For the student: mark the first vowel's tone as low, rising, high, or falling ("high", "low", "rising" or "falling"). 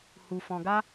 low